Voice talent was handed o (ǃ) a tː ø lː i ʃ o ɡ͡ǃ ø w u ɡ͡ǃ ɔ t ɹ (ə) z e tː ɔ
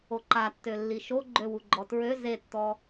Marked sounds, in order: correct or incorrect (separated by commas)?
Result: correct, incorrect